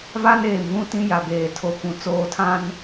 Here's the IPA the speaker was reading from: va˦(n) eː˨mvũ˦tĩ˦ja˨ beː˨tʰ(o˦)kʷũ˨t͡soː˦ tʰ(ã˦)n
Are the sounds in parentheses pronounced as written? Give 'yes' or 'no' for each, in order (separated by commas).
yes, yes, yes